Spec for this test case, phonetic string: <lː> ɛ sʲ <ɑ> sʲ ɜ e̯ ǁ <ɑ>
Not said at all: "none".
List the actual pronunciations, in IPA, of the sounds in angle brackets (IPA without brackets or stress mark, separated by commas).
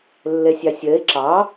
lː, ɑ, ɑ